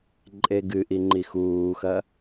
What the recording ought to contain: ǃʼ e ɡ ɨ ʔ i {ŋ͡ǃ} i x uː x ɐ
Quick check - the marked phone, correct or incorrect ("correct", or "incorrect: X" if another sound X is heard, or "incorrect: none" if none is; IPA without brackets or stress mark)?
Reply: correct